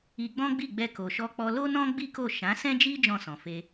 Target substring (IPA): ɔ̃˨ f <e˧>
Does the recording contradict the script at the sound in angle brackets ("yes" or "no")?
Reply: no